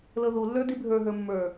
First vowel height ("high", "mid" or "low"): mid